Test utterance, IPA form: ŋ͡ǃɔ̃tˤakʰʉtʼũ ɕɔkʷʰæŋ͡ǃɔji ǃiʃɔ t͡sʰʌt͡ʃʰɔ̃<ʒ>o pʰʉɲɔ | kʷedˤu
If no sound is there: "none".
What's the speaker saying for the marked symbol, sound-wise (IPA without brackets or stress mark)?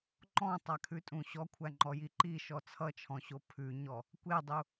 ɕ